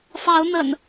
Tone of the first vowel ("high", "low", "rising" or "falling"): rising